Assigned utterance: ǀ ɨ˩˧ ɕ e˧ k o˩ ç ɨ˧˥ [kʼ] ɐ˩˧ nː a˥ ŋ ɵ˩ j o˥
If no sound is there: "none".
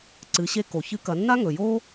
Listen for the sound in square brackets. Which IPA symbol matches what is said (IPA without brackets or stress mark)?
k